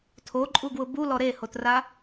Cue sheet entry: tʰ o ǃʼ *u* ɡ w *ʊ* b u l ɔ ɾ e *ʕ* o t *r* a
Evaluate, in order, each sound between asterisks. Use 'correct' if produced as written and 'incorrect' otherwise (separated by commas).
correct, correct, incorrect, correct